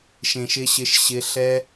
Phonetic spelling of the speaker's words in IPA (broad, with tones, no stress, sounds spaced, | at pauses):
ʃ ẽ˨ ʃ ɪ˧ ɕ ɪ˧ ʃ ɕ ɪ˧ ɬ ɛ˦